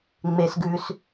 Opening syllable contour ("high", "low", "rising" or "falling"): low